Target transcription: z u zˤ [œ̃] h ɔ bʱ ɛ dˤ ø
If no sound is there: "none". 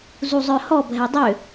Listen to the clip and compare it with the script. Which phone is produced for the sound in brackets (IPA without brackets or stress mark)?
œ